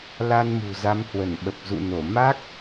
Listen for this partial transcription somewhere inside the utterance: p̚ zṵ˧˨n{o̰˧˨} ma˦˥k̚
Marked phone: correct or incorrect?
incorrect